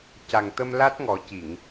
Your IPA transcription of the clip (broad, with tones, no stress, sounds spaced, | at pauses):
c a˨˩ ŋ t̪ ə˧ m l a˦˥ t̚ ŋ ɔ˨˩˦ c i˨˩˨ ŋ